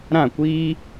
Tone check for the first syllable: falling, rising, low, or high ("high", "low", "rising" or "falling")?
falling